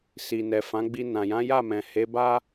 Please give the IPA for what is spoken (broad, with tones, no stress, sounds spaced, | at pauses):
s i˨ n ɛ˨ f ã˨˦ ɡ͡b i˧ n ã˨ j ã˨˦ j a˦˨ m ɛ̃˨ h e˨˦ b a˦